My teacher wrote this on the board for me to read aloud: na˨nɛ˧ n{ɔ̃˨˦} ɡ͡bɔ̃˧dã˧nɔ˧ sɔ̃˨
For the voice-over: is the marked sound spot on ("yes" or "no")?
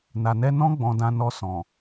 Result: no